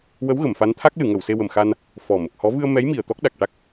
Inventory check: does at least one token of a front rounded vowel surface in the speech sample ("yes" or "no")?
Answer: no